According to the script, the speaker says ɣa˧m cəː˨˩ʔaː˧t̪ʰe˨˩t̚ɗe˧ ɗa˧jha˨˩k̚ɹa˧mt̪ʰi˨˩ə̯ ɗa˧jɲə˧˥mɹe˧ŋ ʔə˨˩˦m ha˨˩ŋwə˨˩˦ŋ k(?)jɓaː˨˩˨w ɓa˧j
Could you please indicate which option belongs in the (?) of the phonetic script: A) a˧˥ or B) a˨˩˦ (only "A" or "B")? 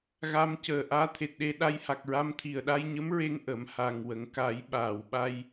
B